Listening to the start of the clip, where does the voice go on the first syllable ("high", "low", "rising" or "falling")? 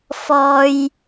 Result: high